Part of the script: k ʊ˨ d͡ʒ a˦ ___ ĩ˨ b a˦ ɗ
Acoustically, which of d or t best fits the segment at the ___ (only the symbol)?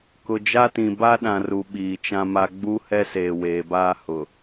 t